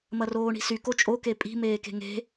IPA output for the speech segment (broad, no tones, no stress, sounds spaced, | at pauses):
m ɐ r oː ɳ i̤ s y k o t͡ʃʼ o k e pʼ i̤ m eː k e̤ ŋ e̤